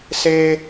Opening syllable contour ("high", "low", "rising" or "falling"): high